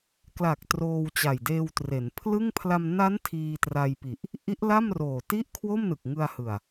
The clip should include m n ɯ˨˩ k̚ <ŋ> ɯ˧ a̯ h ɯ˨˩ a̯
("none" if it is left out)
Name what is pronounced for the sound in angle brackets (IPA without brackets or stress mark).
ŋ